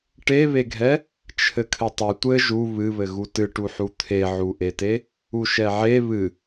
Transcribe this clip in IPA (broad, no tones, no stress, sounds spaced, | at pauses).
ʈ e β e ɡʱ ɛ | t͡ʃʰ ɘ kʰ ɘ tˤ ɘ tʷ ɘ ʒ u β ɨ β ɘ ɣ u t ɨ ʈ u ħ u t̪ʰ e ʕ u ʔ e t e | u ʃ ɛ ʕ e β ɨ